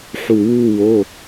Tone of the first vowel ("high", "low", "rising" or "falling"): low